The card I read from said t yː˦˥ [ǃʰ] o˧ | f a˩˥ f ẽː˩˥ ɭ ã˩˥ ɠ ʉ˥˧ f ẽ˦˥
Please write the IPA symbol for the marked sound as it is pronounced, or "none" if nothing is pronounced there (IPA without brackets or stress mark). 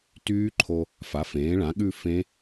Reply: ǃʰ